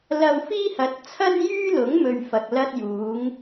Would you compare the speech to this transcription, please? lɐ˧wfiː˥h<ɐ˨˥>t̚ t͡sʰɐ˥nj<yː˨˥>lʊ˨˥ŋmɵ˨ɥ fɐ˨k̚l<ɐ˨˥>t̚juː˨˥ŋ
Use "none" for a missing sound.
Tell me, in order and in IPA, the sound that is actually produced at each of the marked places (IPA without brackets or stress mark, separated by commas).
ɐ˨˥, yː˥, ɐ˥